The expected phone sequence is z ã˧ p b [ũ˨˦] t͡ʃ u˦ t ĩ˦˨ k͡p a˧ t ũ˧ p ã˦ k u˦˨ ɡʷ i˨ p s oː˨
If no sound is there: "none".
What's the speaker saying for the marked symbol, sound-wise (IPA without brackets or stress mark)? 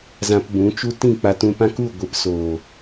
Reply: ũ˨˦